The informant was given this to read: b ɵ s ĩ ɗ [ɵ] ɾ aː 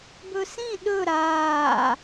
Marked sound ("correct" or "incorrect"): correct